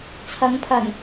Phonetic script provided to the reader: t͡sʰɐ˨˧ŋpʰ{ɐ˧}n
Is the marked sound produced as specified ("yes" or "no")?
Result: no